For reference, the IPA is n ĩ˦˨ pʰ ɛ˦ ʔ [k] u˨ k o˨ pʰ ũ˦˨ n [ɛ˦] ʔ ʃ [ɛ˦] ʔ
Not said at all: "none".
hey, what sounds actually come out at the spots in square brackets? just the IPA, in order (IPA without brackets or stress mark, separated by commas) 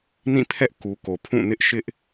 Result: k, ɪ˦, ɪ˦